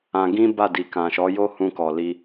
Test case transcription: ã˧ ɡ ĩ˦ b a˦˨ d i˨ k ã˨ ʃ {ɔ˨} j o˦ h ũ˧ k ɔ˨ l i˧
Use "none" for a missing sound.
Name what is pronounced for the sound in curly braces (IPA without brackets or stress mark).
ɔ˨˦